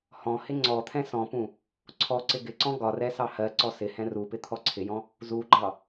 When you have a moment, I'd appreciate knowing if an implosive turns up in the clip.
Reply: no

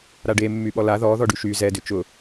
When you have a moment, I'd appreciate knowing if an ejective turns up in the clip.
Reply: no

